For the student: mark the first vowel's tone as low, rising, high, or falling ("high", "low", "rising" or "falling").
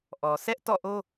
low